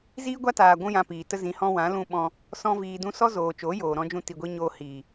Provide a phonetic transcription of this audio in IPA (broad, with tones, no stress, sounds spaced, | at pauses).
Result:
z iː˦ ɡʷ a˦ t aː˨ ɡʷ ũ˦ j ã˧ p iː˨ t ə˦ z ĩ˧ h ɔ̃˦ w ã˨˦ l ũ˧ ɓ ɔ̃˧ | s ɔ̃˦ v iː˧ d ũ˦ s ɔ˦ z oː˨ t͡ʃ oː˨˦ j oː˨ ɾ ɔ̃˦ d͡ʒ ũ˦ t i˧ ɡʷ i˦ ɲ oː˧ h iː˨